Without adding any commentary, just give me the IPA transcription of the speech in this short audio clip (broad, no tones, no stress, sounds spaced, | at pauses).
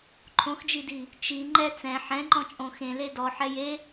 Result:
ǃʰ õ x d͡ʒ i d i | t͡ʃ i ŋ͡ǃ ɛ t͡s ɛ̃ ħ ɛ̃ ŋ͡ǃ ɔ̃ t͡ʃʼ õ x ẽ l e d ɔ ħ ɛ j e